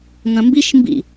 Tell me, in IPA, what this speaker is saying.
ŋ ɐ̃ m b i ʃ m b ḭ

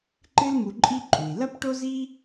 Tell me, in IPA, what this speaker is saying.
ǃ ɨ˥ l m u˧ ǃʼ i˥ ǃʼ u˩ i̯ l ɐ˥ p ʈ o˥ z i˥

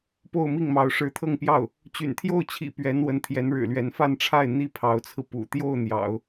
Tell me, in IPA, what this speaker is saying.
p o˥˧ ʊ̯ m i˥˩ ŋ m ɑ˧˥ ʊ̯ ʂ ɻ̩˧˥ t̪ʰ ɤ˥˧ ŋ p j ɑ˥˩ ʊ̯ | t͡ɕ y̰˨˩ n t̪ʰ j o˥˩ ʊ̯ t͡ɕʰ ḭ˨˩ p ɥ ɛ˧˥ n w ə˧˥ n t̪ʰ j ɛ˧˥ n ɻ ɻ̩˨˩ l ɥ ɛ˧˥ n f a˥˧ n ʈ͡ʂʰ a˥˩ ɪ̯ n̪ i˥ pʰ ɑ˧˥ ʊ̯ t͡sʰ ɹ̩˧ p ṵ˨˩ t̪ j o˥˩ ʊ̯ n̪ j ɑ̰˨˩˦ ʊ̯

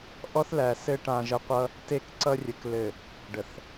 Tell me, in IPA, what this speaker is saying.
ʔ ɔ˦ θ l æ˨ s ɘ˦ ʈ ã˨ ʒ ə˨ qʷ ʌ˦ | t e˦˨ k ǀ ʌ˦ rʲ ə˨ k l ɘ˨ | ɖ ə˨ θ

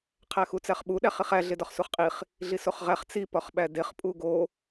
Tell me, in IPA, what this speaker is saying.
qʰ æ x u t͡s æ χ ɓ u ɗ æ χ i χ æ ɮ e d ɒ χ s u χ qʼ i χ | ɮ i s o χ ʁ æ χ t͡s i p ɒ χ ɓ æ d e χ pʼ u ɡ o

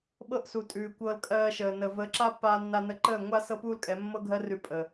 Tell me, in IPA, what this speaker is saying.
ɓ ɤ˦ ʔ s u˨ tʼ ʉː˨ kʷ ɤ˧ l kʼ ɜː˧ ʃ əː˨ n ə˨ v ə˨˦ ǁ a˦ pː aː˧ nː a˧ n ə˧ ǃ əː˦˨ ŋʷ a˦ s ɤ˦ p uː˦ l kʼ ɛ˨˦ mː ɤ˦ ɡʱ ɜ˦ r ʉ˧ pʼ əː˨

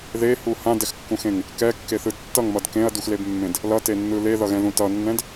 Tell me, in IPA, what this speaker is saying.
ð e h u h ã d ɛ x kː ũ x ẽ ŋ | k ɛ kː e θ ɯ d tː ʌ ŋ m ʌ d k ẽ ɐ̯ d u x l e b mː ẽ d | l ʌ t e nː ɯ l e ð ʌ ɣ ɛ̃ ð ũ t ʌ nː ɛ̃ d

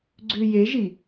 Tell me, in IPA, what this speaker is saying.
ɡ͡ǀ ʉ j e ʒ i

